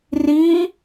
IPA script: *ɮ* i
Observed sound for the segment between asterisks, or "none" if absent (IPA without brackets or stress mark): r